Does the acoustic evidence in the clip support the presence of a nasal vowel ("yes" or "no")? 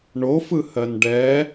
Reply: no